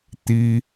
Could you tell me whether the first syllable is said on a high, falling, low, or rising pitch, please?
high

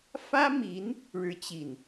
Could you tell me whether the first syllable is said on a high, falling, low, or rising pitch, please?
high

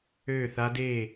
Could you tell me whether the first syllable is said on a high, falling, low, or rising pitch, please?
falling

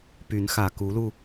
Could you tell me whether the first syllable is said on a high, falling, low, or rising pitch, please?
rising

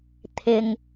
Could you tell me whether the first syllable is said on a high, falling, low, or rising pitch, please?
low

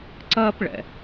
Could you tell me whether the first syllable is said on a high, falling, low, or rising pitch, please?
high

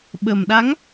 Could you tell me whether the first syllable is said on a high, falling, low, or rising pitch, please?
low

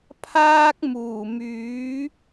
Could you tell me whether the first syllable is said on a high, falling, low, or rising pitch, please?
high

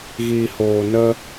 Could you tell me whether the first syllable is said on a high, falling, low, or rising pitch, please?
low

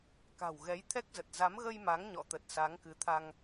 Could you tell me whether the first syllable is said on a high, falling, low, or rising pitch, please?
low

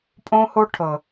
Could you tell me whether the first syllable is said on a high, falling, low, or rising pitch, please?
high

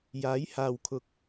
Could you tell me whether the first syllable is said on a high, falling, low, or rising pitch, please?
rising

